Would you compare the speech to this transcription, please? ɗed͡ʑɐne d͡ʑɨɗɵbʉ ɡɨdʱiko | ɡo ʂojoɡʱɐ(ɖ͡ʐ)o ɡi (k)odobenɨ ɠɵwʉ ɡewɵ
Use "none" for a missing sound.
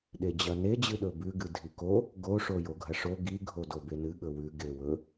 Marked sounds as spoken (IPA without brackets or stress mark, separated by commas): ʂ, ɡʱ